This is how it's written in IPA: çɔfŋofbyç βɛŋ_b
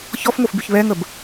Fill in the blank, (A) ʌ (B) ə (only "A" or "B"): B